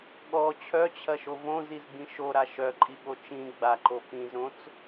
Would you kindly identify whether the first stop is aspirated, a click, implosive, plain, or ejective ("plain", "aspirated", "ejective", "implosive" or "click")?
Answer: implosive